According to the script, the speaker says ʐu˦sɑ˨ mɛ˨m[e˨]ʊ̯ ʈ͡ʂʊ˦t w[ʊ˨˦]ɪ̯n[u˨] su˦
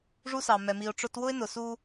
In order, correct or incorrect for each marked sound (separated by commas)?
incorrect, incorrect, incorrect